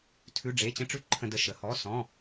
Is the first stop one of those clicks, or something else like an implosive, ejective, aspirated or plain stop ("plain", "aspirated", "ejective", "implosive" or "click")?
aspirated